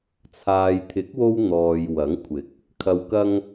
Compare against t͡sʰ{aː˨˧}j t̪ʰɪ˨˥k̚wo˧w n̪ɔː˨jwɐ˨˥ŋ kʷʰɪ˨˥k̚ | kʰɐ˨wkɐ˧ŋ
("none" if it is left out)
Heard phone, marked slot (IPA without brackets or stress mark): aː˨